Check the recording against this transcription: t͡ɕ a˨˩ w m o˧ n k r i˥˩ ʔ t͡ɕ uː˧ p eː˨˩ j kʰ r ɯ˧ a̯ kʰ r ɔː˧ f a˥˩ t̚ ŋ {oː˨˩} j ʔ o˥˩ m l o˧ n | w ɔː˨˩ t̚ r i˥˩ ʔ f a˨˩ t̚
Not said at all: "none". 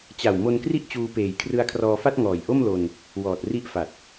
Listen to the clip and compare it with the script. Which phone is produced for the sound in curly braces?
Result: ɔː˨˩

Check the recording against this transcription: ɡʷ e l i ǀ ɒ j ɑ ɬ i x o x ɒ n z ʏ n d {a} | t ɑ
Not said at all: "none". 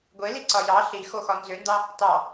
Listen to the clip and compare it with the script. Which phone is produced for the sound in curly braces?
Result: ɑ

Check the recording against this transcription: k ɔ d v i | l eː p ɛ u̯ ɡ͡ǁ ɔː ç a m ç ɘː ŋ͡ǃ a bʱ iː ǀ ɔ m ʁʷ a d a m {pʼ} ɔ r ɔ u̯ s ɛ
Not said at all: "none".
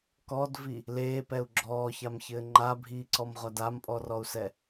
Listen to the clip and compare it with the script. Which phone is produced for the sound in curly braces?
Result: pʼ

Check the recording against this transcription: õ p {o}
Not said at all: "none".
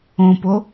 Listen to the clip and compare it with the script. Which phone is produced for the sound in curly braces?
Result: o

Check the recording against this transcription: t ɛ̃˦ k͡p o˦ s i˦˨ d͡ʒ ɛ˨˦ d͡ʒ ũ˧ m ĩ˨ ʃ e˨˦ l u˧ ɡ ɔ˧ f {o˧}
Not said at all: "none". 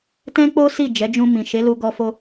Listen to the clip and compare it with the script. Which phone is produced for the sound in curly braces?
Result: o˧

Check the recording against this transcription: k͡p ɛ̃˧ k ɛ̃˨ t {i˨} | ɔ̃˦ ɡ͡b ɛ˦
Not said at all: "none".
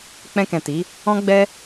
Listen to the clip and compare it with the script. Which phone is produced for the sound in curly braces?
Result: i˨˦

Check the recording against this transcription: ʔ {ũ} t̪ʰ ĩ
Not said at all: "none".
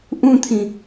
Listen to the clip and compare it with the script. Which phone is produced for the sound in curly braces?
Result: ũ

